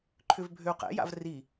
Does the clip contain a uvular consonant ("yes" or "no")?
yes